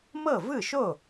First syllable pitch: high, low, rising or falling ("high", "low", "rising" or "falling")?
falling